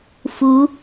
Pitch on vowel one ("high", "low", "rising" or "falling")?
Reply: rising